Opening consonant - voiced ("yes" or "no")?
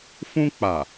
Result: no